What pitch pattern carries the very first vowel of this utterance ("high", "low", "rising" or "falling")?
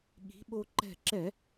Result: rising